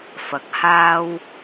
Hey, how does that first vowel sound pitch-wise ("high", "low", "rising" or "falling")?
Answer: rising